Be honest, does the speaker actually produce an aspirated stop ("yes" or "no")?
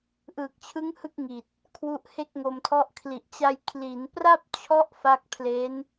yes